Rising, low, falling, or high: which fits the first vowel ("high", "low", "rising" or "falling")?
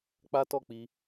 high